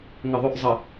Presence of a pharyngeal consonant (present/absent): absent